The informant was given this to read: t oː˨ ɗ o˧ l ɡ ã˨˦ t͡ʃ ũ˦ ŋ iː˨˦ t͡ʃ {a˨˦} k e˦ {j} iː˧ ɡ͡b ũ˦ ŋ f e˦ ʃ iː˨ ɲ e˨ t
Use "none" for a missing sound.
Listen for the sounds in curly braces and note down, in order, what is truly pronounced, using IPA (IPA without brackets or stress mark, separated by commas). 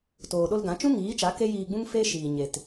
a˨˦, j